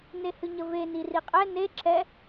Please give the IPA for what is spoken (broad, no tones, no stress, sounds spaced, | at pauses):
n e h ɨ ɲ ə v e n i r i qʼ ɛ n e ǁʰ ɛ